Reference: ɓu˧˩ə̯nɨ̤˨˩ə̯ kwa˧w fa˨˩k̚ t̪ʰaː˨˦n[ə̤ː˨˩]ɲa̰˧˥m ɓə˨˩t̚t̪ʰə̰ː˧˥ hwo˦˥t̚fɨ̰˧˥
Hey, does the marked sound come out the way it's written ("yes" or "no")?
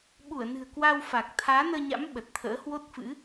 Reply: no